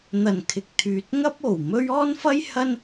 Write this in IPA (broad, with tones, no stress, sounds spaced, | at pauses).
n̪ ɐ˨˩ n kʰ ɪ˨ k̚ t̪ʰ yː˨ t̚ ŋ ɐ˥ p̚ o˨˩ w m ɵ˥ ɥ ɔː˥ n f ɐ˥ j h ɐ˥ n